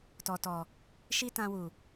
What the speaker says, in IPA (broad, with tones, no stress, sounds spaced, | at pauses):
t ɔ˨ t ɔ˨ | ʃ i˦ t ã˧ w u˨